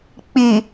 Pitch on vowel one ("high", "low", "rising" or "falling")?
low